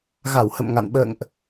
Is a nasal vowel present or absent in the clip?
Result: absent